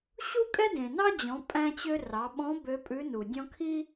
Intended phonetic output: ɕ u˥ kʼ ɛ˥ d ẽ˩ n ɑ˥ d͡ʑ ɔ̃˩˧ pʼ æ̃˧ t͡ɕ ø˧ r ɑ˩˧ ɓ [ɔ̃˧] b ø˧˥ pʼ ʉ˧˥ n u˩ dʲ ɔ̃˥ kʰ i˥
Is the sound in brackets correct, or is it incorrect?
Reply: incorrect